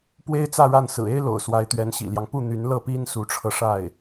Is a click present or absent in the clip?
absent